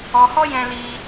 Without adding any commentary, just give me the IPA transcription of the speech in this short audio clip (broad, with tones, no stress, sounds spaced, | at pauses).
ɔ˧ h ɔ˦ j ɛ̃˦ l i˦